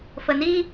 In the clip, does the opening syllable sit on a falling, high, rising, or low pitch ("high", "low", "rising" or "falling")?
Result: low